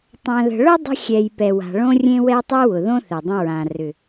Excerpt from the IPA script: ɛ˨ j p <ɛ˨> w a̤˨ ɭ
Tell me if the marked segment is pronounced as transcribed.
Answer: yes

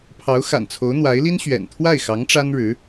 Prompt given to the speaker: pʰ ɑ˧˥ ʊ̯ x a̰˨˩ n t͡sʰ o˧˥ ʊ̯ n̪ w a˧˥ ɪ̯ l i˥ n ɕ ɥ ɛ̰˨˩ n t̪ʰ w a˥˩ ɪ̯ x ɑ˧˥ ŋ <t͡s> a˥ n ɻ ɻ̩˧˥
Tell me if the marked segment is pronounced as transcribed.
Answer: no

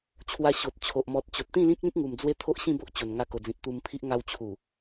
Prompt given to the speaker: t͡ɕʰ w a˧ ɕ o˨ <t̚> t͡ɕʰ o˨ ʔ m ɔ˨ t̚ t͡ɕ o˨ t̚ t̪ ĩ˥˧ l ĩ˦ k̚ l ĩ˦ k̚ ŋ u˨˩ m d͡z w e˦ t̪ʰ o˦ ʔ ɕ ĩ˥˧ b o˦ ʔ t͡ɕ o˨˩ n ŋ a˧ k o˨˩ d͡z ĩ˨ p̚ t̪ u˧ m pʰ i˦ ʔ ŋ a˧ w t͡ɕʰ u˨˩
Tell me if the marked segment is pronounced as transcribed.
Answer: yes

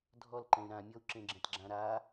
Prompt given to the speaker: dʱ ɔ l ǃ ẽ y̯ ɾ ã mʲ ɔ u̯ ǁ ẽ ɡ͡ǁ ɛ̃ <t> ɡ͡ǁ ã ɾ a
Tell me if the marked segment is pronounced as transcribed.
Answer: yes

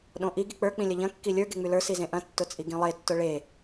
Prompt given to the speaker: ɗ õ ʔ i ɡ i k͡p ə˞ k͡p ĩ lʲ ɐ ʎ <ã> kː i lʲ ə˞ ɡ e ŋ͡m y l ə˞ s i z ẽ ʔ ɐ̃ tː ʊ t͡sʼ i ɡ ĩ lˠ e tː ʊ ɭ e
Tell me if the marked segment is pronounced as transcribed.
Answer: no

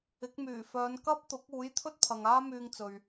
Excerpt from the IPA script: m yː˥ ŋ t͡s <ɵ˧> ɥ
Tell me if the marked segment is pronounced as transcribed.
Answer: yes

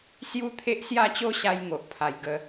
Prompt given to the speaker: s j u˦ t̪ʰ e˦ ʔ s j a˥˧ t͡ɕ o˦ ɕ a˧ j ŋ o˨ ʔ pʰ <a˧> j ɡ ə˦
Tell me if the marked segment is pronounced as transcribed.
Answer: yes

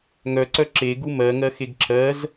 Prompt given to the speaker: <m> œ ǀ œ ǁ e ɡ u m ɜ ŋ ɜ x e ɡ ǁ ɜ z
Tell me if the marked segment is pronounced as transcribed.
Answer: no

